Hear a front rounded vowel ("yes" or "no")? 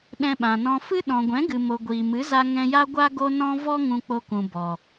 no